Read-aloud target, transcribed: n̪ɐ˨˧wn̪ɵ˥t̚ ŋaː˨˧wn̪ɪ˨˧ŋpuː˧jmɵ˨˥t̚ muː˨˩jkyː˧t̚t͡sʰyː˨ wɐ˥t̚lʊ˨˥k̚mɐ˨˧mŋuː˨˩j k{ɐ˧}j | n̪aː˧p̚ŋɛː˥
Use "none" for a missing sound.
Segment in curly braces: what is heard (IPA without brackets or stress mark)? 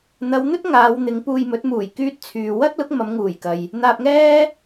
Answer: ɐ˨